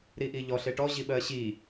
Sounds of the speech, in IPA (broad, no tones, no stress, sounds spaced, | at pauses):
ɾ i ʔ i ʎ ɔ ɬ e ʈ ɔ ʑ i ɓ ɜ ɕ i